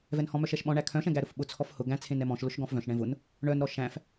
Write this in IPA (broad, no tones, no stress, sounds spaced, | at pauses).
v ɛ n h ɔ̃ m œ ʃ ɛ ʃ ɓ ɔ̃ ɳ æ kʰ œ̃ ʃ ɛ̃ ɡ æ ɾ ʊ f ɓ ʊ t͡sʰ ɔ f h ʊ ɡ æ̃ t͡sʰ ẽ n ɛ m ɔ̃ ʃ l ʊ ʃ ɡ ɔ̃ f v œ̃ ʃ ɳ ɛ̃ v ʊ n | ɳ œ n ɾ ɔ ʃ æ̃ f